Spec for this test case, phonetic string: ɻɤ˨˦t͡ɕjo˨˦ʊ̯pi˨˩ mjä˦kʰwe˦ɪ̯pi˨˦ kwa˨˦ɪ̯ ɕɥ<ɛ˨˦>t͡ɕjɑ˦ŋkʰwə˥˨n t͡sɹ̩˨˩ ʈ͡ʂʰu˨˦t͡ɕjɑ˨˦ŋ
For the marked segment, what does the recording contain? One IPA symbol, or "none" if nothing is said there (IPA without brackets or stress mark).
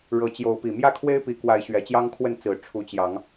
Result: ɛ˨˩